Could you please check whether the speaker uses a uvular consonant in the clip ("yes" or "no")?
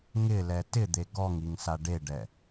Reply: no